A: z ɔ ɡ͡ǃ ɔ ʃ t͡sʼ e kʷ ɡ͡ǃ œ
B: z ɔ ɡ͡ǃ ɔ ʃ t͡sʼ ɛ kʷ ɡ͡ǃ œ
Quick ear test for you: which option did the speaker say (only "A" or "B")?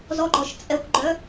B